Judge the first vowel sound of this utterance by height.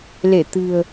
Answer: mid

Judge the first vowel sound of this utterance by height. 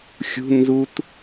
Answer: high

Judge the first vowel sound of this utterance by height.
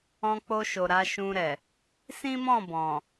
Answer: mid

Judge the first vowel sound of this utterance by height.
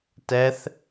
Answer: mid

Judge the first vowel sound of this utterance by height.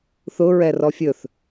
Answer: high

